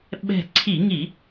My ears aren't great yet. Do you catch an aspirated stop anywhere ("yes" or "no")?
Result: yes